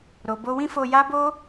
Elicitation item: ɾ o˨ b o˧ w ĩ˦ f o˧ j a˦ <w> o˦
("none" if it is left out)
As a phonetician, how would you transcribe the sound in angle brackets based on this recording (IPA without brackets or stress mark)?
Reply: b